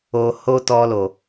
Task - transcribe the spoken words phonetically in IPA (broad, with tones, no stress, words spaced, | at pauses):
o˧ ho˦tɔ˧lo˨